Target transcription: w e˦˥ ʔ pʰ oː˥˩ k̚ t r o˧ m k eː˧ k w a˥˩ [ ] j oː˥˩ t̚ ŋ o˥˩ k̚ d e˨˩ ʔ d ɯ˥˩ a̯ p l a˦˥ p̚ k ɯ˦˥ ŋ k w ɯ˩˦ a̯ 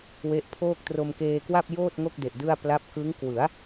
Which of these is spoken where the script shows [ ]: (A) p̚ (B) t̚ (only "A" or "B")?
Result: A